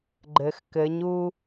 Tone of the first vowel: low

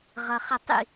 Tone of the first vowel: low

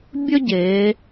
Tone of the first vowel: high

